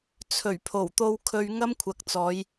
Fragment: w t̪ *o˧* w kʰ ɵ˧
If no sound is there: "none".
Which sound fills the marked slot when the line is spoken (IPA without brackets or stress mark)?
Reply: o˧